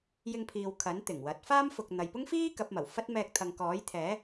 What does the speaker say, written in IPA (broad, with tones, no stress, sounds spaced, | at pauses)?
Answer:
j ɪ˧ ŋ pʰ iː˨ w kʰ ɐ˨˥ n t̪ ɪ˨˩ ŋ w ɐ˨˥ t̚ f aː˥ m f ʊ˨ k̚ n̪ ɐ˨ j p ʊ˥ ŋ f iː˥ k ɐ˨˥ p̚ m ɐ˨˩ w f ɐ˥ t̚ m ɛː˧ k̚ t̪ʰ ɐ˨ ŋ k ɔː˨˥ j t̪ʰ ɛː˨˥